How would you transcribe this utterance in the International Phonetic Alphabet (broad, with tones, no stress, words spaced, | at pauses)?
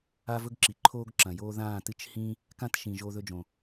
a˦vɵ˦ɡǁi˨ ǃʰoː˦ɡǁɐ̃˨joː˦ ðãː˦˨tɨ˦t͡ʃhĩ˦ | kã˦tʃĩ˨ ʒoː˧ðɵ˧d͡ʒõ˨